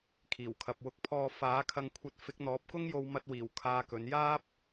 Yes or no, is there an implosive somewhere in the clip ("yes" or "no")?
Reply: no